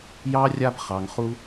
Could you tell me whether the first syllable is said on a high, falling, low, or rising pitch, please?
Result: high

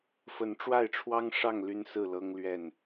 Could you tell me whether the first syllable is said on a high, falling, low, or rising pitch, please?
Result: rising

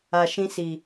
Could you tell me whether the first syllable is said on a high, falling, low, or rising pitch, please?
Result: low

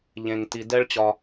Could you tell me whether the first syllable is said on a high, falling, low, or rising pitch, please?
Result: low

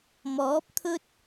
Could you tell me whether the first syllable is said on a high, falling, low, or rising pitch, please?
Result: rising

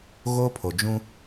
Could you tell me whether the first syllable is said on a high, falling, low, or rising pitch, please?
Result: high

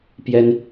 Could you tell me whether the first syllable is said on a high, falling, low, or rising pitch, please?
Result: high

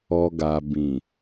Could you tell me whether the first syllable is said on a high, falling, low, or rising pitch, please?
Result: low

